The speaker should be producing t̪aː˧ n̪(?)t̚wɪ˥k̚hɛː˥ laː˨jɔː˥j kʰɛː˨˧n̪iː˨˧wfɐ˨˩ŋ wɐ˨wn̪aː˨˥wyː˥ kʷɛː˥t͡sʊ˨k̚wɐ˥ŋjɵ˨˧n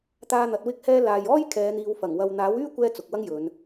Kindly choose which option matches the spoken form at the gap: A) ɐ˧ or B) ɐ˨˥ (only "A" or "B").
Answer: B